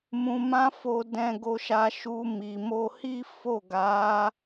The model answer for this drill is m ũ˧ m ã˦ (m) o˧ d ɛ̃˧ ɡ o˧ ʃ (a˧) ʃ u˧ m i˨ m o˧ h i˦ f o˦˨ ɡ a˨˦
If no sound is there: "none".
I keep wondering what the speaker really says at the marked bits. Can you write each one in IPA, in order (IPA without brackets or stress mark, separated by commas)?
f, a˧